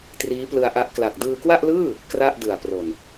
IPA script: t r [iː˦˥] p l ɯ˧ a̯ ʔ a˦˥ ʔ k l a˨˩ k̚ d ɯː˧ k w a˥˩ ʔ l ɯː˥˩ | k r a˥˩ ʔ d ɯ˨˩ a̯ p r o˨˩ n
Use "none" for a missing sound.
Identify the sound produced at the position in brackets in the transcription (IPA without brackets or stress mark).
iː˦˥